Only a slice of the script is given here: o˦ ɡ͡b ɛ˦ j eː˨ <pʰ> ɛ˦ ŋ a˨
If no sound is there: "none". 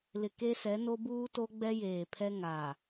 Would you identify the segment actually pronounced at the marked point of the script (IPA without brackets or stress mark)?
pʰ